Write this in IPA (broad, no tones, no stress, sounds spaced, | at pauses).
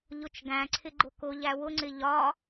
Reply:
ʎ ʊ t͡ʃ ɡ æ̃ ǀʰ ɪ ɡ͡ǃ ʊ k ʊ ʎ æ w ʊ ŋ͡ǀ ɪ ʎ ɒ